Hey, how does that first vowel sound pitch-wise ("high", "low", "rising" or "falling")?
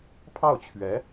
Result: falling